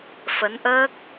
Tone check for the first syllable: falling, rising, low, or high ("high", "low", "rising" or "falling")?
rising